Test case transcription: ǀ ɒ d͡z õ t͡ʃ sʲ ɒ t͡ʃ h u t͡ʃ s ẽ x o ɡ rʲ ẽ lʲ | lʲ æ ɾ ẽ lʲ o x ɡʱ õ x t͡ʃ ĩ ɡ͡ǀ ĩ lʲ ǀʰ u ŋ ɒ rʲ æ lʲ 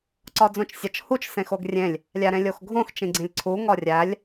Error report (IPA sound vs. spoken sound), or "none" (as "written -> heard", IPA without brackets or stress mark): none